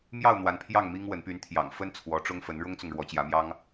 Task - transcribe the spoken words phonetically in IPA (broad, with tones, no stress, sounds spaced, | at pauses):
m j ɑ˥˨ ʊ̯ n̪ w a˨˦ n pʰ j ɑ˥˨ ŋ m i˦ ŋ w ə˨˦ n p y˨˦ n t̪ʰ j ɑ̰˨˩ ŋ f ə˦ n t͡sʰ w ɔ˨˦ ʈ͡ʂ ʊ˦ ŋ f ə˨˦ n ɻ ʊ˦ ŋ t͡s ʊ˨ ŋ ɻ w ɔ˨˦ t͡ɕ j ä˨˦ m j ɑ˦ ŋ